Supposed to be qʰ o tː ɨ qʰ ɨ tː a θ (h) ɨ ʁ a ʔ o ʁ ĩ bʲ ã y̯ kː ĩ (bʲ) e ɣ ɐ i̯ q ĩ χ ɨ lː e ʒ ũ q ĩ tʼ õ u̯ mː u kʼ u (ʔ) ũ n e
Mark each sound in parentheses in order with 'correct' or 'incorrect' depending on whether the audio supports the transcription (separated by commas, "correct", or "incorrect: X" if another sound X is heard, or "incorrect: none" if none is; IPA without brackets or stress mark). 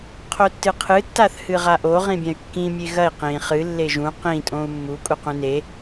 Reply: correct, incorrect: mʲ, incorrect: q